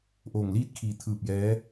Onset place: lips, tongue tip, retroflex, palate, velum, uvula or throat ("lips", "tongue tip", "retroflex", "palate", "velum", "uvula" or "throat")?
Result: throat